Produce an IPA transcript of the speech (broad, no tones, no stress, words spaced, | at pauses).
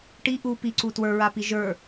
ʈi ʔu piǀu twə˞ɹapi ʒə˞